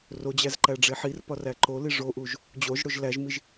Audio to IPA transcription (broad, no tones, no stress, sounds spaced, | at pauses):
r o d͡ʑ æ z ǃ æ ɖ͡ʐ e ħ i r p ɒ r æ ǃ o l i ʐ o ʔ u ʒ | d͡ʑ o ʒ ɽ o ʒ l æ ʒ m i ʒ